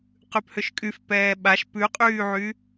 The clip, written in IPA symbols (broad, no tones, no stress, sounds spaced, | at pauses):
q ʉ p h ʏ ʃ kʼ y f p ɛː ɓ a ʃ p ʉ qʼ yː ʕ y